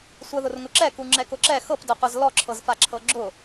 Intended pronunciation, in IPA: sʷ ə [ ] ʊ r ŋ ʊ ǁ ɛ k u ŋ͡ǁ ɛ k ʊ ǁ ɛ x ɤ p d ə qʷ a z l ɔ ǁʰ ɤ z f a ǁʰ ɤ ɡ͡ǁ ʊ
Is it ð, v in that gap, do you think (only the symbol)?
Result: ð